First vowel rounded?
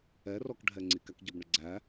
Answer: no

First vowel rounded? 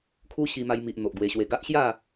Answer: yes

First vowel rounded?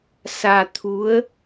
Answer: no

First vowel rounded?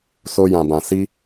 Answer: yes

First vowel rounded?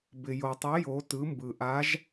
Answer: no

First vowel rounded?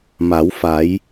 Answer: no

